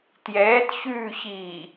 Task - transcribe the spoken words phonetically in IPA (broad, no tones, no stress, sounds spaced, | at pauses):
t j ɛː t ç ʉː ç iː